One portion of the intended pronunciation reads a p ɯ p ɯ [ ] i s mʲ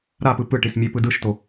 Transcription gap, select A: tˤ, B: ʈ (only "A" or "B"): B